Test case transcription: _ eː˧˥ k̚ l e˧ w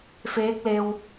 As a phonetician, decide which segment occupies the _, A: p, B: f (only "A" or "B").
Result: B